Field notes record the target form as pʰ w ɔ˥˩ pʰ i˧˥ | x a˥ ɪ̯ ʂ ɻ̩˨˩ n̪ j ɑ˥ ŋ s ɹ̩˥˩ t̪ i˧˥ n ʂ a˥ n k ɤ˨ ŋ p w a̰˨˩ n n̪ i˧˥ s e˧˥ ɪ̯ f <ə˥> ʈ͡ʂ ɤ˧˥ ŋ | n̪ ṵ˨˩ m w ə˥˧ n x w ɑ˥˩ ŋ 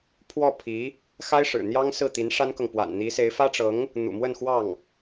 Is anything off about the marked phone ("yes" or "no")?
yes